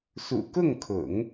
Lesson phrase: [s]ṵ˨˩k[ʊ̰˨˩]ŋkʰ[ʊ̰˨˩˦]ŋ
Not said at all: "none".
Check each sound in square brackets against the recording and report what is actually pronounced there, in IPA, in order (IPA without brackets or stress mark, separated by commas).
s, ʊ˥˩, ʊ̰˨˩˦